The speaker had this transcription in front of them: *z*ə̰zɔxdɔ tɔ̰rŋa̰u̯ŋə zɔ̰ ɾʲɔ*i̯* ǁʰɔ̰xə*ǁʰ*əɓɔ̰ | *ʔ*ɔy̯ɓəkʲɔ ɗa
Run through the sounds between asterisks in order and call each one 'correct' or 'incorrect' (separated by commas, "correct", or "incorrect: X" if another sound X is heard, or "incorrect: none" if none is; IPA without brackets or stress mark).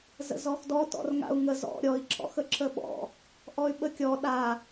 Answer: correct, correct, correct, correct